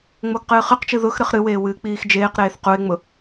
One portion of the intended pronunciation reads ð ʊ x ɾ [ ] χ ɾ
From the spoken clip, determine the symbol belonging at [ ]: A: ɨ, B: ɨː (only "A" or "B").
A